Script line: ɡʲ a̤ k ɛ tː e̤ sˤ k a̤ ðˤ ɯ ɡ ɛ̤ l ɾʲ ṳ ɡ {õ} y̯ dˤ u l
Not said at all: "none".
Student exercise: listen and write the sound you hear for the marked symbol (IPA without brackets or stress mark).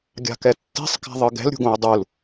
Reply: õ